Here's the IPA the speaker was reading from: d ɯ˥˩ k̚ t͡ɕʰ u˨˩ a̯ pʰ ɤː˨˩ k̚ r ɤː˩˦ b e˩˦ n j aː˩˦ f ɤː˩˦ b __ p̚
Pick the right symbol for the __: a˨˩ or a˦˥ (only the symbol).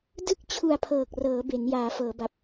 a˨˩